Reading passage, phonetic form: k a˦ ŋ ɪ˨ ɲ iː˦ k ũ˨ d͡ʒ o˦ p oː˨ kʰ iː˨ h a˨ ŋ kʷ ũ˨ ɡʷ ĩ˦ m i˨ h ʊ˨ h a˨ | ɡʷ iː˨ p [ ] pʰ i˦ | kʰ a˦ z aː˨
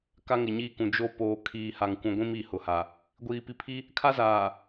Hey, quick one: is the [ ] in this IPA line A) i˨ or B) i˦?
A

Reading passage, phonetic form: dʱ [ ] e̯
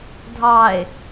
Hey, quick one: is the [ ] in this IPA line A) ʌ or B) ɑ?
B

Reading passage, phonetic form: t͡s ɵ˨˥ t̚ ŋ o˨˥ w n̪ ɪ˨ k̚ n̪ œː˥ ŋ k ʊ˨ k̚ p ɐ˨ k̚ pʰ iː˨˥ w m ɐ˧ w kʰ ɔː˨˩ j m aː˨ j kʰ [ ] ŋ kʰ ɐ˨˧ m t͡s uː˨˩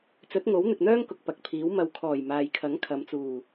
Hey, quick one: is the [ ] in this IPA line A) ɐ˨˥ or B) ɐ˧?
A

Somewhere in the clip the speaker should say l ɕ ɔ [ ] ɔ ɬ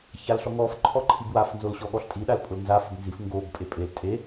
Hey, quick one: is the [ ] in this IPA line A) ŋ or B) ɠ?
B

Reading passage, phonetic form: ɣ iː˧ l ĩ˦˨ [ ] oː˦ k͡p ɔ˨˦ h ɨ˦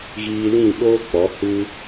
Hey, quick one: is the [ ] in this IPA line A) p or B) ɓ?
B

